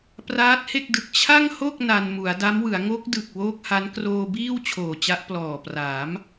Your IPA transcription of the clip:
p r aː˦˥ t̚ h e˥˩ k̚ d ɯ˨˩ k̚ t͡ɕʰ a˥˩ ŋ h o˥˩ k̚ n a˧ n m u˩˦ a̯ d a˦˥ m w ɯ˩˦ a̯ ŋ o˦˥ k̚ d ɯ˨˩ k̚ w oː˦˥ k̚ h a˦˥ n k r oː˧ b iː˥˩ w t͡ɕʰ oː˨˩ t͡ɕ a˦˥ ʔ p l ɔː˨˩ p r aː˩˦ m

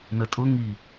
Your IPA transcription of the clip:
n ə tʼ ʊ ŋ i

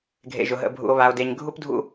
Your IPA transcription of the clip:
ɡʱ ḛ˨ ʒ ʊ˨ ɦ ə̰˨ bʱ ṵ˨ o̯ β a˨ o̯ d e˨ ɲ ɡʱ u˦ p dʱ ṵ˦

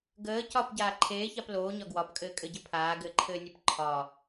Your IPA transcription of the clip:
ɡ əː c ɒ p ɟ aː ǃʰ eː ç a p l oː ɲ ɒ ɡ w ɒ p kʼ ɘː kʼ ɘ ɟ ɘ pʰ aː ɡ ɘː ǃʰ ɘː nʲ ɛ p ǃʰ ɒ

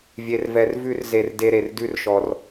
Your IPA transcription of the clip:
vʲ e˦ r v ɛ˦ r v ʉ˦ r z e˧ r d e˦ ɾ e˧ r d ʉ˦ r ʃ ɔ˧ r

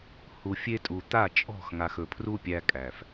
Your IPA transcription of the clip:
h u˨ fʲ e˦ tʼ u˨ t̪ a˦˨ t͡ʃʼ ɔ̤˦˨ x ŋ a˨ x ɵ˨ pʰ r u˦ pʲ æ˦ kʼ æ˨ f

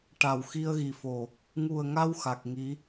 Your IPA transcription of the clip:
ʈ a˨˩˨ w x i˧ ə̯ ɣ i˨˩ f o˨˩ | ŋ u˨˩ ə̯ ŋ a˧ w x a˨˩ k̚ ŋ i˧˥

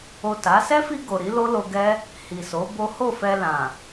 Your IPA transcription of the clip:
o˨ t a˨˦ s ɛ˦ f i˧ ɡ o˨ ɾ i˨˦ l o˦ l o˧ ɡ ɛ˦ | h i˨ s o˨˦ b o˦ h o˦˨ f ɛ˧ l ã˨

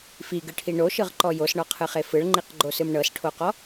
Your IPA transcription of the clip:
f i ɡ ɯ ʈʰ i ɳ o ʃ ɯ ʁ ǃ ɔ j o s ɳ ɔ qʰ ɯ χ e f ɯ ɭ ŋ͡ǃ i q ɡ͡ǃ o s ɯ m ɳ ɤ s ʈʰ o q ɔ

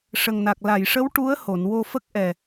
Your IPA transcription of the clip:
ʂ ə˨˩ ŋ n a˨˩ k̚ l a˨˩˨ j ʂ ə˧˥ w ʈ u˧˥ ə̯ h o˨˩˨ n w o˧ f ə˦˥ k̚ ʔ ɛ˨˩

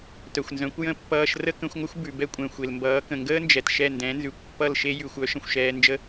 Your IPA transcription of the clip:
t œ˩ xʷ n z œ̃˩˥ kʷ j ə̃˥˩ pː ʌː˧ ʃ r ə˥ k ə̃˩˥ xʷ ŋʷ ə˥ xʷ b ʉ˩ b ɛ˥ kʷʼ ɛ̃˩ xʷ e˩ l m b ʌː˩˥ k ə̃˩ ŋ ɡ əː˥ n d͡ʒ ɛ˩ t ʃ ɛ˥˩ n d ɛ̃˩˥ n z ʉ˩ kʷ pː ʌ˥˩ l ʃ e˥ j ʉ˩ xʷ œ˩˥ ʃ ə̃˩ xʷ ʃ ɛː˧ n d͡ʒ ə˥

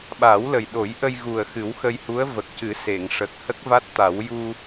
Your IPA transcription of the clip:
ɓ a˨˩˦ w l ə˨˩ j ɗ o˨˩˦ j ʔ ə˧ j ɣ u˨˩ ə̯ x ɨ˨˩˦ w x ə˧ j h u˧˥ ə̯ v ə˨˩ k̚ c ɨ˨˩˦ s e˨˩˨ ŋ ʂ ə˨˩ k̚ h ə˦˥ k̚ v a˦˥ t̚ t̪ a˨˩˦ w j u˧

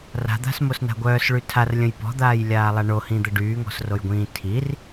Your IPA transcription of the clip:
r a̤ d̪ a̤ s m o s n a̤ ɡʷ œː s ɭ y tʰ a r lʲ ə̃ j p ɔ̤ d̪ aː j lʲ aː lˠ a ɳ o h ĩ d̪ ə ɖ yː ŋ ɔ̤ s r o j ɡʷ ĩː tʰ i r

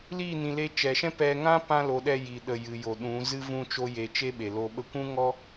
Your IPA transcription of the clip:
l i˦˨ n ĩ˨ l e˧ t͡ʃ ɛ˨ ʃ ɛ̃˦ p ɛ˧ ŋ ã˦ p ã˦ l o˧ ɗ ɛ˧ j i˨ ɗ ə˨ j ɨ˨ j o˨ ɗ ũ˨˦ z ɨ˦ v ũ˦ t͡ʃ o˦ j e˧ t͡ʃ e˦ ɓ e˨ l o˧ ɓ ə˦ kʷ ũ˦ ŋ ɔ˦

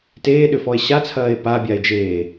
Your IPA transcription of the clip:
t eː ɗ ʏ f ɔ e̯ ɕ a t͡sʰ ɐː e̯ p a bʲ a e̯ d͡ʒ eː

